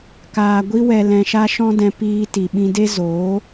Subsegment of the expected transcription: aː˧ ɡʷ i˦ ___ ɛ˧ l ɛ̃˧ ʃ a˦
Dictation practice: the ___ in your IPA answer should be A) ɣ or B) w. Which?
B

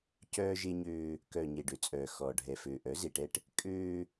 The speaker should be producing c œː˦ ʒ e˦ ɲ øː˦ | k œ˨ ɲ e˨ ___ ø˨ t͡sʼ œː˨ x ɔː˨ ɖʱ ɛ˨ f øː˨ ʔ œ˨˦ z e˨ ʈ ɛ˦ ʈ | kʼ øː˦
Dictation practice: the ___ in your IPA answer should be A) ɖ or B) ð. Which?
A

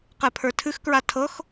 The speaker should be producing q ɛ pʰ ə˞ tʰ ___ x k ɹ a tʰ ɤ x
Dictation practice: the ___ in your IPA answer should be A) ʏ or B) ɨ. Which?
B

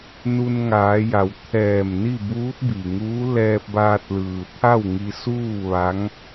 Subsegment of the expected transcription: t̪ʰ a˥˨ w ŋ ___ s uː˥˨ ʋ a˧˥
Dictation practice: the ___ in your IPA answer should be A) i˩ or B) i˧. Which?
B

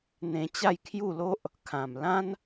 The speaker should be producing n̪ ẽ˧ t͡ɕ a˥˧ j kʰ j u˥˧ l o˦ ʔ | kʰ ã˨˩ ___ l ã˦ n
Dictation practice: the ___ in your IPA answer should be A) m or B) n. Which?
A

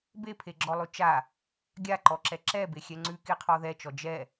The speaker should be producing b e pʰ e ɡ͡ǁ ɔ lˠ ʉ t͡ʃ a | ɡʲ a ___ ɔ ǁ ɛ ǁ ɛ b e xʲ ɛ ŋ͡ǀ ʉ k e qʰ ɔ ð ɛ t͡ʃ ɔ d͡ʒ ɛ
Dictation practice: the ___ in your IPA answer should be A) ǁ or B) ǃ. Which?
B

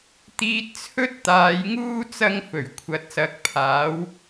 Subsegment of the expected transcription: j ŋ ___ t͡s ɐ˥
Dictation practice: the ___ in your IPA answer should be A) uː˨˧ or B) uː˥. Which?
B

